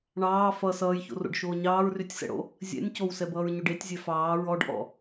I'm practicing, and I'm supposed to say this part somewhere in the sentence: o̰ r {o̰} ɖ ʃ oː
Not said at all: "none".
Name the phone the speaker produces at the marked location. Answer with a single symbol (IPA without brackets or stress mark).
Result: o̰